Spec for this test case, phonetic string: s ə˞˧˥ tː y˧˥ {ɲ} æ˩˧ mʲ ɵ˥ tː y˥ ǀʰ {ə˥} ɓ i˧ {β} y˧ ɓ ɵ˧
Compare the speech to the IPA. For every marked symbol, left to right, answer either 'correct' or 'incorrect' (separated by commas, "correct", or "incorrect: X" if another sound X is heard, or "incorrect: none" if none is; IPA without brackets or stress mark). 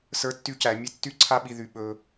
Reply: incorrect: c, incorrect: a˥, incorrect: ð